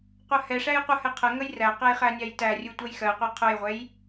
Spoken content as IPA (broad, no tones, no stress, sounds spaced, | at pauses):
qʷ ɜ h ɛ ʂ æ j qʷ ə h ɛ qʰ ə ŋ ə j r æ q ɛ j χ æ nʲ æ j t æ rʲ u tʷ ɜ j x ɜ qʷ e qʰ ʊ j ʁʷ ɛ j